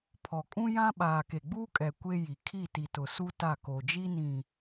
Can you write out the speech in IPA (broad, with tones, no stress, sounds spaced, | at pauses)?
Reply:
pʰ ɔ˨ kʼ ũ˦ j ã˦ ɓ aː˨ k e˨ ɡ͡b uː˦ kʼ ɛ˨ kʷ e˦ j i˨ kʰ i˦˨ t i˨ t ʊ˨ s u˦ t a˦˨ k o˨ d͡ʒ i˦ n ĩ˨